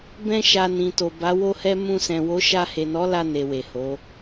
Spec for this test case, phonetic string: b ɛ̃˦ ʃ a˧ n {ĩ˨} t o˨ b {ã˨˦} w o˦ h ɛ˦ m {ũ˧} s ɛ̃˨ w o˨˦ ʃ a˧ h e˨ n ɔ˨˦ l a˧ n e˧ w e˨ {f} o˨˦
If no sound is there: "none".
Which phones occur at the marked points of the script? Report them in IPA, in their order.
ĩ˨, a˨˦, ũ˧, h

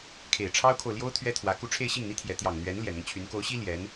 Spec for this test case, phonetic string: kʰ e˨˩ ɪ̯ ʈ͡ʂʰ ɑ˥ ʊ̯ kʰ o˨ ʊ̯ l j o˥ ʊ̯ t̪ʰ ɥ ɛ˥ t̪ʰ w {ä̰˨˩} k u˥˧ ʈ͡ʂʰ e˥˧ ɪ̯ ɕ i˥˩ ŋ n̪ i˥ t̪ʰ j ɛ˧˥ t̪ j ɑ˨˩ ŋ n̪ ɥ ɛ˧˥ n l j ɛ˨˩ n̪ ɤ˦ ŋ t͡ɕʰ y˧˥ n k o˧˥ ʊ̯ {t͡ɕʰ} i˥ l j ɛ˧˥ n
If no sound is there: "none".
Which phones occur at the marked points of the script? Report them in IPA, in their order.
ä˧˥, ɕ

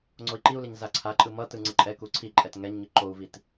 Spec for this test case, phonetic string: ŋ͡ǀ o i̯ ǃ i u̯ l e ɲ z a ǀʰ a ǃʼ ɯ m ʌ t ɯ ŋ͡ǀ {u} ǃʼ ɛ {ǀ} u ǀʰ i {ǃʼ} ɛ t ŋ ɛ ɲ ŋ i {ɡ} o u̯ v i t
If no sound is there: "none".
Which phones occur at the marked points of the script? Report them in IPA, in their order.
ɯ, k, ǃʼ, ǃ

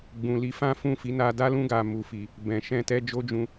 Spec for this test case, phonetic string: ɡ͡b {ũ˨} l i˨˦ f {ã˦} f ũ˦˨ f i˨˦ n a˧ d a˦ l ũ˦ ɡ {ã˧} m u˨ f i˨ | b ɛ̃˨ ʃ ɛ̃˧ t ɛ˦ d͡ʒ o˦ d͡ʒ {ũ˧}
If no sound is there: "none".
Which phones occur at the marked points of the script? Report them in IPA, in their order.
ũ˨, ã˦, a˧, ũ˧

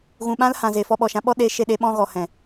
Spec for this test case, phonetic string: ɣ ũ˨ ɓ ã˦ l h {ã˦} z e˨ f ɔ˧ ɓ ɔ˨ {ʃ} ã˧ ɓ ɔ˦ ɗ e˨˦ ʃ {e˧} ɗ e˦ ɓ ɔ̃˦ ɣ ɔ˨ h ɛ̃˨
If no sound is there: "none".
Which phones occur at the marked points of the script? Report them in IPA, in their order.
ã˨, ʃ, e˧

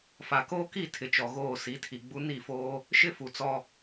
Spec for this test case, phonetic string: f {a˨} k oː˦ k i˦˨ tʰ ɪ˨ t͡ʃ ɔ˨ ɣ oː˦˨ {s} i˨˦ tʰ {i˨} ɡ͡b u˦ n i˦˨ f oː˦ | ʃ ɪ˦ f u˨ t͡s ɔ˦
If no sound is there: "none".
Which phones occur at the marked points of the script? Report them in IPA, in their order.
a˨, s, i˨

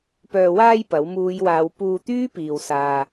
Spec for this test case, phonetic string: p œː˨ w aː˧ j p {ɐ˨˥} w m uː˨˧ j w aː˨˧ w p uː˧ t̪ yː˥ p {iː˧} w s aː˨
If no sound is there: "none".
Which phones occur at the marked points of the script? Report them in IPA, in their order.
ɐ˨˥, iː˨

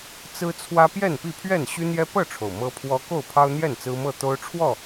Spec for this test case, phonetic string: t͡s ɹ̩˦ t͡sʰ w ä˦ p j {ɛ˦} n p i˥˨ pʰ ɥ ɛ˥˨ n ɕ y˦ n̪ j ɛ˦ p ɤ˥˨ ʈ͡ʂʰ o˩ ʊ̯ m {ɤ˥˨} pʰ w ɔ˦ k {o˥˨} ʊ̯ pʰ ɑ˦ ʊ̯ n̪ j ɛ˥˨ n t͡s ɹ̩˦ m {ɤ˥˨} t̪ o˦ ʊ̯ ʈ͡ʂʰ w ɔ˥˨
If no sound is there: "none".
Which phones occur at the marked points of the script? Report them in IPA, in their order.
ɛ˥˨, ɤ˦, o˥˨, ɤ˥˨

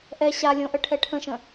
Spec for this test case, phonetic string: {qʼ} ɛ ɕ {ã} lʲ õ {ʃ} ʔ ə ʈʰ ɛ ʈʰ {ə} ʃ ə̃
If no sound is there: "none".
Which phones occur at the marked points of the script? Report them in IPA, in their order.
ʔ, a, none, ə̃

